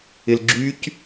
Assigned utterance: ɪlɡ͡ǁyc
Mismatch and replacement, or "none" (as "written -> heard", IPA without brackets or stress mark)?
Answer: none